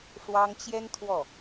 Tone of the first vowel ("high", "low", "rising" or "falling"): high